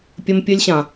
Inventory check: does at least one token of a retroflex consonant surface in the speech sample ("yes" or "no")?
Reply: no